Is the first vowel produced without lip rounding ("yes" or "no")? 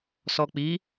no